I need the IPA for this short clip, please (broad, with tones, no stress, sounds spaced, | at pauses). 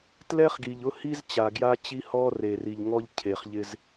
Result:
t l ɛ˦ χ ɡ i˨ ʎ ʊ˦ h i˦ z t͡ɕ a˨ ɡ j a˦ t͡ɕ i˦ h ɔ˦ r e˨ r i˨ ʎ ŋ ɔ˦ ʎ cʰ e˨ χ ʎ ɪ˦ z